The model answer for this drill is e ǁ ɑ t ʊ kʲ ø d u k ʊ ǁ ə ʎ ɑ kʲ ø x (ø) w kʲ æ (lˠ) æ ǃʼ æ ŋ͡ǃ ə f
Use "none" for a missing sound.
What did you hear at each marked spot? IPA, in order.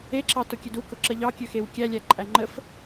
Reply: e, lʲ

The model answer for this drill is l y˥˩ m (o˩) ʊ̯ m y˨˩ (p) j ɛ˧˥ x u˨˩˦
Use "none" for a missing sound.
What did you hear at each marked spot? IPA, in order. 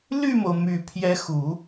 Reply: o˩, pʰ

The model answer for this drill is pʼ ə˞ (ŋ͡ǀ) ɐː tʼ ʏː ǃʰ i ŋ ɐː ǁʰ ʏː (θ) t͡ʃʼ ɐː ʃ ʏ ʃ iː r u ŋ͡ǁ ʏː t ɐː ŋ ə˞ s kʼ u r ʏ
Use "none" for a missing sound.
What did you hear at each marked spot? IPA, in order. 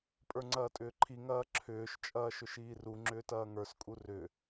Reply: ŋ͡ǀ, ʃ

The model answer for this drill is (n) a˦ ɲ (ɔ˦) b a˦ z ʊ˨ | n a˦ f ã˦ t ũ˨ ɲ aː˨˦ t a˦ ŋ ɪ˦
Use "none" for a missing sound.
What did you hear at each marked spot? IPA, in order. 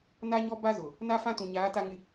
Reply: n, ɔ˦

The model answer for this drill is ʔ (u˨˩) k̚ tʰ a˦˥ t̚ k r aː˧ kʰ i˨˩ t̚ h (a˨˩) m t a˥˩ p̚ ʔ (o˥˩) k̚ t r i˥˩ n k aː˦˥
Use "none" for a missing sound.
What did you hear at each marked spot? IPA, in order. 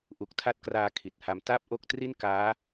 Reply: u˨˩, a˧, o˥˩

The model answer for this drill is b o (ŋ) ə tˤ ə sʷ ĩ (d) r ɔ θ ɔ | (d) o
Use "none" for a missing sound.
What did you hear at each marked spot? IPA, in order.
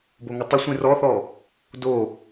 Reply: ŋ, none, d

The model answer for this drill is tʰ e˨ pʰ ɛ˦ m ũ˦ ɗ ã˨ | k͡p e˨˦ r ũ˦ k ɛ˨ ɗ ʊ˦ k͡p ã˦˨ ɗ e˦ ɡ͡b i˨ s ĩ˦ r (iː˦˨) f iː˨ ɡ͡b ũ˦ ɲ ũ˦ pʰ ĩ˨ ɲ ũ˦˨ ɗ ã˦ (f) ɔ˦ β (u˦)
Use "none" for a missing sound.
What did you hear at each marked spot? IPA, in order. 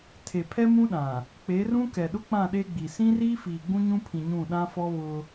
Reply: iː˦, f, ʊ˦

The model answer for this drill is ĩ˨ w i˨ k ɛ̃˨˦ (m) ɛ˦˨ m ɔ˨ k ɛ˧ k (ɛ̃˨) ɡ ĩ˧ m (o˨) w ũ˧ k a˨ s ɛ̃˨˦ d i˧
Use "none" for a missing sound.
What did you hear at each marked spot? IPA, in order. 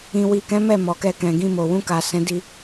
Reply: m, ɛ̃˨, o˨

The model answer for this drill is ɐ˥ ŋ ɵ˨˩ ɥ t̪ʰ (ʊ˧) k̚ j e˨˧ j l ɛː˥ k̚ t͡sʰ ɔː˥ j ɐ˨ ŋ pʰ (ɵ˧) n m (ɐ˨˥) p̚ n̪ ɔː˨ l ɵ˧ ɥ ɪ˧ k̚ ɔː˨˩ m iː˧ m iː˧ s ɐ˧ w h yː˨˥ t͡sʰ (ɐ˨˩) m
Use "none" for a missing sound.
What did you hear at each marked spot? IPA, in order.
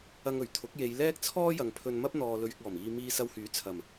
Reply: ʊ˨˥, ɵ˧, ɐ˥, ɐ˨˩

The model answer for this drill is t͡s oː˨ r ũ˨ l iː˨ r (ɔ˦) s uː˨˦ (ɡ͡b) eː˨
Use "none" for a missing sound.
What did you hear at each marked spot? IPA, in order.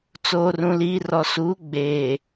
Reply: ɔ˨, ɡ͡b

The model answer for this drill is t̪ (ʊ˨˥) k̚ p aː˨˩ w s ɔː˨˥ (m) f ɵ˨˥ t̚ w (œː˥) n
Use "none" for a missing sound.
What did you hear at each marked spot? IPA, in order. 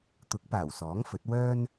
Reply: ʊ˨˥, ŋ, œː˥

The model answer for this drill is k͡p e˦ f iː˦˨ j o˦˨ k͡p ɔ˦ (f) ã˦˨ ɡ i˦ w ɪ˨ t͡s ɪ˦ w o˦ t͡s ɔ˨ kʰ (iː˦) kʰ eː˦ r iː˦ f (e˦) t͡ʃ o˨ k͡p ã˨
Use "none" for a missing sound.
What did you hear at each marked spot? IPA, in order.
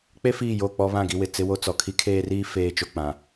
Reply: β, i˦, eː˦

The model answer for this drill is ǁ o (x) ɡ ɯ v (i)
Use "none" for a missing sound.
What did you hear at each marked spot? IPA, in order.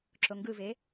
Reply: ŋ, e

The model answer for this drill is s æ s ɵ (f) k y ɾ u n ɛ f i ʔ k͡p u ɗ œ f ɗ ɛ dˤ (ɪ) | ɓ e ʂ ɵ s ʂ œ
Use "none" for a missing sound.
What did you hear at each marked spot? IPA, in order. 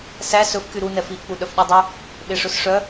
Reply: f, y

